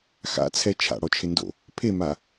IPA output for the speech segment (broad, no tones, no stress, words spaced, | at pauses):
xa̰t͡sʰɛ t͡ʃʰa̰ɽɔt͡ʃʰɪndo̰ | pʰema